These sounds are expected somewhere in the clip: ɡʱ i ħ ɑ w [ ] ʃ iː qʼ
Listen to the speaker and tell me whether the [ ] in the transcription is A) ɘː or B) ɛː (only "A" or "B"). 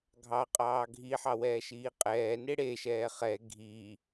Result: B